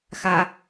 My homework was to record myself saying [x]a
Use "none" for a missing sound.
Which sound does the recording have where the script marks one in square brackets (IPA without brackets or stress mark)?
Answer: x